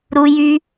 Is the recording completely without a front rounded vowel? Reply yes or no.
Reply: no